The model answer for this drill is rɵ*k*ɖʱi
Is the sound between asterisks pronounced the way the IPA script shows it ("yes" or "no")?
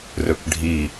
yes